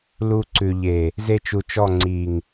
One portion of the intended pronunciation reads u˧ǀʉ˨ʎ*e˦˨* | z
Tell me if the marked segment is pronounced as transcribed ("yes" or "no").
no